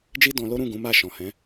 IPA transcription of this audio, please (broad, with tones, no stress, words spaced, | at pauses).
d͡ʒi˦dɔ̃˧lo˦ ɾũ˦˨ ɡũ˨˦ma˦˨ ʃɔ̃˨hɛ̃˨˦